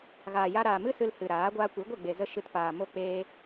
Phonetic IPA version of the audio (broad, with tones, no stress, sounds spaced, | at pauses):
ɣ aː˨ j a˧ ɾ aː˨ m ɨ˦ s ɨ˧ l h ɨ˨ ɾ aː˨˦ ɡʷ aː˧ kʷ i˨˦ ɡʷ e˦˨ ɡ͡b e˨ z ə˧ ʃ ɨ˧ t p aː˨ m o˧ k͡p eː˧